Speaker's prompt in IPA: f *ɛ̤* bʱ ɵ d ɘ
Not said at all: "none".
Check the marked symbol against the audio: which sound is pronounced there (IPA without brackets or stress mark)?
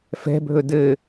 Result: ɛ̤